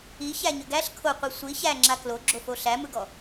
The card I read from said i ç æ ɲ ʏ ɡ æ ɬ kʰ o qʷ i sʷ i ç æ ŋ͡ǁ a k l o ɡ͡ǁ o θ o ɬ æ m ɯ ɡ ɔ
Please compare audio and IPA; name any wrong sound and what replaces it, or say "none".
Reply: θ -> f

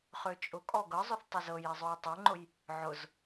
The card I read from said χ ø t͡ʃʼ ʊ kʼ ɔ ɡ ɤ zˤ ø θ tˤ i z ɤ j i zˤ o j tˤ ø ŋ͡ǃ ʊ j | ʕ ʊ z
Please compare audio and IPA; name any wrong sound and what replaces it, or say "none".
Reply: none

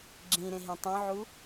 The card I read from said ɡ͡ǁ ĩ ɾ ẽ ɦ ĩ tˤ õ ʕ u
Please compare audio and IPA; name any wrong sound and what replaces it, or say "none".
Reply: none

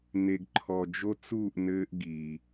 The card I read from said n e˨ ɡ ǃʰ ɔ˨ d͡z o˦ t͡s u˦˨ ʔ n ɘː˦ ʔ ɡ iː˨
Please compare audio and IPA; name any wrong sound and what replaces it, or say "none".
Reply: d͡z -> d͡ʒ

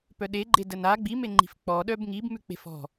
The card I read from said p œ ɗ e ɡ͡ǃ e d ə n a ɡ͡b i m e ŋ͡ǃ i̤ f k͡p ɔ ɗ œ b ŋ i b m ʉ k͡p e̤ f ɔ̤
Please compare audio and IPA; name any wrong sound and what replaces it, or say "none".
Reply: none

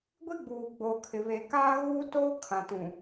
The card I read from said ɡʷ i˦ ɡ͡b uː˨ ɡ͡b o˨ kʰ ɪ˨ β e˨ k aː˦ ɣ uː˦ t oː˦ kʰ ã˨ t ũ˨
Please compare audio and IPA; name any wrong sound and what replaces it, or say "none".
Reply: none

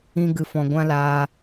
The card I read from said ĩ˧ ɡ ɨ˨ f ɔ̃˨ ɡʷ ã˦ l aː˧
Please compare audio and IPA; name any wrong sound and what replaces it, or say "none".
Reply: none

